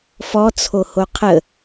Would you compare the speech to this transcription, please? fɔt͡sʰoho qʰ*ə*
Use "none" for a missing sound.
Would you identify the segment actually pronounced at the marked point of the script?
ə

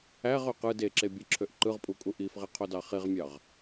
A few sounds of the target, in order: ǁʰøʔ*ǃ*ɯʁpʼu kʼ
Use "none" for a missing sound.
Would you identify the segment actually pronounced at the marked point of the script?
ǃ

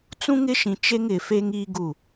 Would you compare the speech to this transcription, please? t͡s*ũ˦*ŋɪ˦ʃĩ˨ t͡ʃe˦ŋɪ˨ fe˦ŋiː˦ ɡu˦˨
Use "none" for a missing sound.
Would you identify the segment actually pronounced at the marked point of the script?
ũ˦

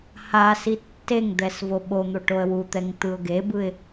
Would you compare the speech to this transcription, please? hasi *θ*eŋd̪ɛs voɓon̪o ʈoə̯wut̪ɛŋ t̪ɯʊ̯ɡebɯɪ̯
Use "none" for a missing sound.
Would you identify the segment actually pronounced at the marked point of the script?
tː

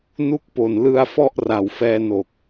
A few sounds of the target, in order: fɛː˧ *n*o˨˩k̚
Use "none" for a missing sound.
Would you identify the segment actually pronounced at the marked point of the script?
n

